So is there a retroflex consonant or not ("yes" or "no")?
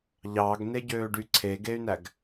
yes